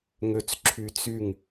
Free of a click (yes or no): no